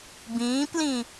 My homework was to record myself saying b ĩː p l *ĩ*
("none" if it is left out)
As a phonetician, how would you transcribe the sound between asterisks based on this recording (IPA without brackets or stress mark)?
ĩ